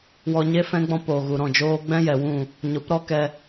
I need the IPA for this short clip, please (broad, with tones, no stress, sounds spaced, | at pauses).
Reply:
w ɔ˧ ɲ e˦ f ɛ̃˦ ɡ͡b ɔ̃˦ p oː˨ ɣ u˨ ɾ ɔ̃˦˨ d͡ʒ oː˦ ɡ͡b ɛ̃˦ j ɛ˨ w ũ˦˨ | ɲ o˨˦ p ɾ ɔ˦ k ɛ˧